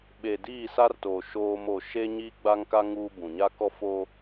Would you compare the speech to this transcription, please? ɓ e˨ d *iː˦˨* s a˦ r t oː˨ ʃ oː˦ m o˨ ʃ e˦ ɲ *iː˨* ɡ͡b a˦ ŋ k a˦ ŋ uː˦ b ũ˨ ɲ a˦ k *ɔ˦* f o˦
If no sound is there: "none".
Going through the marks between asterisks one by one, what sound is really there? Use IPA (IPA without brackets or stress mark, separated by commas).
iː˦˨, iː˦, ɔ˦